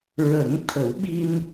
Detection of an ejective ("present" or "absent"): absent